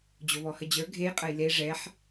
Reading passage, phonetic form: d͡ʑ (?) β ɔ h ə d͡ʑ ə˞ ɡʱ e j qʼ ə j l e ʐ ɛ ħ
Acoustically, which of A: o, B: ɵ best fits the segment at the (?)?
A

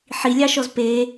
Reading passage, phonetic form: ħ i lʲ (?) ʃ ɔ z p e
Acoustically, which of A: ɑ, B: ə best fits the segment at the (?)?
A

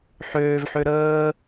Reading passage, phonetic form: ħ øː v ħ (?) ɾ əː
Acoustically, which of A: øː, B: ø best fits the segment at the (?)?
B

